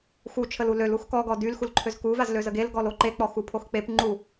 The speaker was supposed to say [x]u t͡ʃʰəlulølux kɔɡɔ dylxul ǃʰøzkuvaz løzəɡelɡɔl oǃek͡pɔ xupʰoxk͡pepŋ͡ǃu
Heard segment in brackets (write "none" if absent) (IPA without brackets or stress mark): x